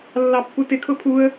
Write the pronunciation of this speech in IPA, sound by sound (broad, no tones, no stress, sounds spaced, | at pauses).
lː ɑ pː u t ɪ kʰ ʊ pʰ u ə̯